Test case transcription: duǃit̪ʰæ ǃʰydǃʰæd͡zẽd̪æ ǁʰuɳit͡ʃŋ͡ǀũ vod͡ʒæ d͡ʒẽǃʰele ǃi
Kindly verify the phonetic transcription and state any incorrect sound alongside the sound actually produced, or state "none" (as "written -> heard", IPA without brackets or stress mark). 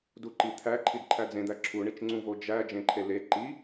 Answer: y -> i